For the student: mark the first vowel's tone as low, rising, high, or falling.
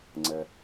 low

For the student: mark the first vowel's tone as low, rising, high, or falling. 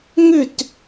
falling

